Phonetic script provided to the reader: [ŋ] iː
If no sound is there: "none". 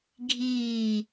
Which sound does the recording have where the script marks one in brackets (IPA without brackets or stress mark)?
ɡʱ